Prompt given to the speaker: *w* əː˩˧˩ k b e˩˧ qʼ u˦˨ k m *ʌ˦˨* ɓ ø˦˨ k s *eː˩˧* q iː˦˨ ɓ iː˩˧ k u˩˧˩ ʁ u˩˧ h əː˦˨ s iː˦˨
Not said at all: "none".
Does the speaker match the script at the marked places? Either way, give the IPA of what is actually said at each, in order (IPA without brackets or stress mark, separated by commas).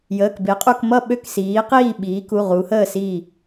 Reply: j, ʌ˦˨, iː˩˧